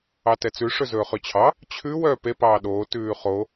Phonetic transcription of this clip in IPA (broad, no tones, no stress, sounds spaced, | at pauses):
ɑ t ɛ t͡s ʉ ʂ ɵ z ɵː χ ʉ t͡ɕʰ ɑ | t͡ɕʰ ʉ w œː p e p ɑː ɗ oː t ʉː χ o